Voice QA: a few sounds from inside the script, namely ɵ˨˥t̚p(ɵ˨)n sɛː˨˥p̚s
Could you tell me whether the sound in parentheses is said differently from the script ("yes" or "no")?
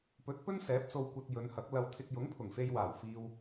yes